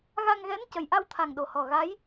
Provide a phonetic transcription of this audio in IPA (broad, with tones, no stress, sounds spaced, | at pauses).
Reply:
ɣ a˧ ŋ ɣ ɛ˧˥ n c ə˨˩ j ʔ a˧ w t̪ʰ a˨˩ ŋ ɗ o˨˩ h ɔ˨˩ ɣ a˧˥ j